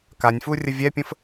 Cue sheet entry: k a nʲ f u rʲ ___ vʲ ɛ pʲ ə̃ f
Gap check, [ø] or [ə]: ə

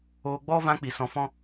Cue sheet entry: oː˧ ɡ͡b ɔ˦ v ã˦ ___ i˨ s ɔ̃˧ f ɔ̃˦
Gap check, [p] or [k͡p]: k͡p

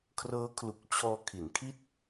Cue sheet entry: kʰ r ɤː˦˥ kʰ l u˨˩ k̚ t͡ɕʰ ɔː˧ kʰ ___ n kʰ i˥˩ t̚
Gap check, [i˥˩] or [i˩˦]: i˩˦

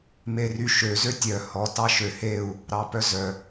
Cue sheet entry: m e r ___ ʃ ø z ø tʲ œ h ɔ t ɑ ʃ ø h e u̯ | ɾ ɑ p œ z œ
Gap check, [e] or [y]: y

